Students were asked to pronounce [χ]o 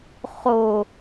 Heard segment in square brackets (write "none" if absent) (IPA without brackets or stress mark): χ